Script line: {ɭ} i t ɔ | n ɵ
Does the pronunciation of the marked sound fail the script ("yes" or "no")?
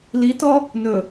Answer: yes